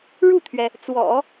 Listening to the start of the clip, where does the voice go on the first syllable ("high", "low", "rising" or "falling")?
falling